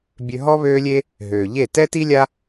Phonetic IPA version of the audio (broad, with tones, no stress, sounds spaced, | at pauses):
bʲ ø˧ ɦ ɔ˦ β øː˦ lʲ e˦ | ɦ øː˨ ʎ e˦˨ t ɛ˦ t i˦ lʲ a˦